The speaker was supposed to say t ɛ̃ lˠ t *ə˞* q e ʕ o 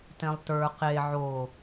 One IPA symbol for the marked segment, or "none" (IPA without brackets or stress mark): ə˞